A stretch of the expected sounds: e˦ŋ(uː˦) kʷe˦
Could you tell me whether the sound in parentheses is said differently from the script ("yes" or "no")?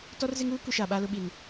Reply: no